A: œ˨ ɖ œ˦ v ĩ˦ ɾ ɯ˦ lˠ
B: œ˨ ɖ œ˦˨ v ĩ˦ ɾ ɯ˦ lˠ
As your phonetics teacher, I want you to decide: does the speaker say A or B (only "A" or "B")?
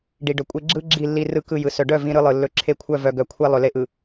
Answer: B